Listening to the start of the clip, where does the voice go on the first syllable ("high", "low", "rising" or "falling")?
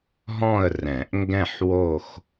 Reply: falling